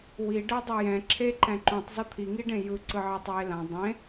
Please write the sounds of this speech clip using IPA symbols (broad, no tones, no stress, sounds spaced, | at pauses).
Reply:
w i ɖ ɛ dˤ u j ɛ̃ ǁʰ e ǃ ɛ̃ ǃ ũ tˤ z ʌ t̪ʰ i ŋ i ɖ ẽ j ɯ ǀ ɯ ʕ e tˤ w e l ã dˤ ẽ